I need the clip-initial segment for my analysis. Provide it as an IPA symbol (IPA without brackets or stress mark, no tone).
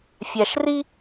fʲ